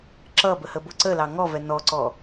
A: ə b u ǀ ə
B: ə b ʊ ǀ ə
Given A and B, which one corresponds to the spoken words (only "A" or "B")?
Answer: B